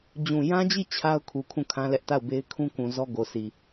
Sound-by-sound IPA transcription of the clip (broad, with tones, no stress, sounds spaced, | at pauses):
d͡ʑ ũ˨ j ã˦ d͡ʑ i˦˨ t͡ɕʰ a˦ ʊ̯ kʰ u˨ kʰ ũ˦˨ kʰ ã˦ l ɛ˦ ʔ t a˦˨ ʊ̯ b e˦ ɪ̯ kʰ ũ˦ k ũ˨ z ɔ˦ ɡ o˨ sʰ i˨